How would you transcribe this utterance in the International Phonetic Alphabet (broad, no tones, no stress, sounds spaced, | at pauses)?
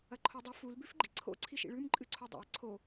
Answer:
ɐ ǃʰ o dˤ ɨ f u l b ʉ f ɡ͡ǃ ḭ ǀʰ o̰ ǀʰ i ʃ ḭ ɭ ʉ m ǃʼ ɨ ǀʰ u dˤ o̰ ɐ̯ ǀʰ o